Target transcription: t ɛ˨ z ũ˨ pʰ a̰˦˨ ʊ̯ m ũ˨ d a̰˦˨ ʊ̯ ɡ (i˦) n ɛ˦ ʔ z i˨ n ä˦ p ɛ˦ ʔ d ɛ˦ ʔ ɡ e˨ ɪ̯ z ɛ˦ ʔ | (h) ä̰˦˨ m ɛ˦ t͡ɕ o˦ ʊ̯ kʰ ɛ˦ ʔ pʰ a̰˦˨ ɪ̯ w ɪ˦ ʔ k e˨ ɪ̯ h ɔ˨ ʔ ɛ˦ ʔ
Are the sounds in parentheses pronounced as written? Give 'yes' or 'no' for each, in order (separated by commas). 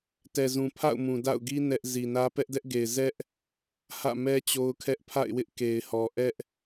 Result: yes, yes